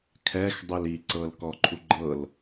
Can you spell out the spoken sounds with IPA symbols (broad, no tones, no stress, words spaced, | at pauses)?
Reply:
kʰɛx dˤeli ǀɤlkɔǃʰuɡ͡ǃɤl